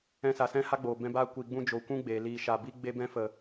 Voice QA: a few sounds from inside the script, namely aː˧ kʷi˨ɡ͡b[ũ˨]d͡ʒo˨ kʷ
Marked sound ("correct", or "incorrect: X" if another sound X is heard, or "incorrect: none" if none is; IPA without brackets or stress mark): incorrect: ũ˧